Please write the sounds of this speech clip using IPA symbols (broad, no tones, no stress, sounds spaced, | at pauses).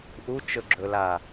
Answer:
ʔ u t͡ʃ ɵ ɡ͡ǁ ɵ l a